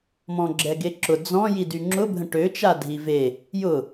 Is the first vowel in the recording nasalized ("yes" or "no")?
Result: yes